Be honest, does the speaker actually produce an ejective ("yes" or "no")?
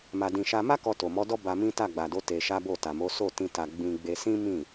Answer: no